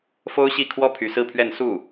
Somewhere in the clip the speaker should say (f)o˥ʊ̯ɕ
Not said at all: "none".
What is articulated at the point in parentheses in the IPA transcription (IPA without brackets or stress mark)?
f